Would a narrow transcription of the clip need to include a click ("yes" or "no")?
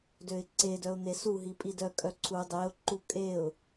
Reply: yes